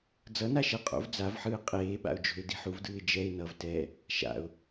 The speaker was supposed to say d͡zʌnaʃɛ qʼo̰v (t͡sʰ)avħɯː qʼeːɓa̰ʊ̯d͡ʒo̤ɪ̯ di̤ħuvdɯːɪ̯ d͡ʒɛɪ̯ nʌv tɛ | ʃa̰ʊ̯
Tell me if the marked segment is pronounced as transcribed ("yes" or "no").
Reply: no